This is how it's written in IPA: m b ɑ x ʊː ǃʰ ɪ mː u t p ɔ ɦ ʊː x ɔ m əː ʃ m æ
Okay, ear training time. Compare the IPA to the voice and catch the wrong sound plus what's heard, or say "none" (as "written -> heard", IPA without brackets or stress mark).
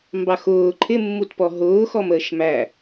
none